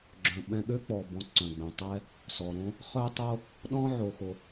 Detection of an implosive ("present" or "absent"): present